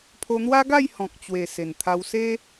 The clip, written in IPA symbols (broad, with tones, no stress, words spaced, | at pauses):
pʰo˧n̪wa˦ɡa˥˧j hɔ̃˨k̚t͡ɕwe˨˩ se˨˩nt̪ʰa˧wse˦